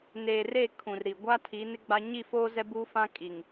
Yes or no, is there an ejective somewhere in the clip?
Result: yes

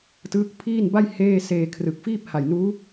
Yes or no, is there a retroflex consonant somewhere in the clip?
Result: no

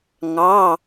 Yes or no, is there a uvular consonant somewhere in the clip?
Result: no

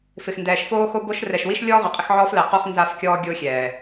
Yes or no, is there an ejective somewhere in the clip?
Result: yes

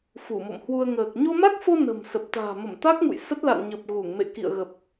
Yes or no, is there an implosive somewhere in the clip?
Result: no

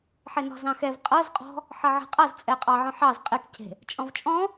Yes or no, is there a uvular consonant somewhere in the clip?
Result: yes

